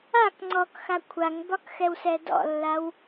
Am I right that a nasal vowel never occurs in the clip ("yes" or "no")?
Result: yes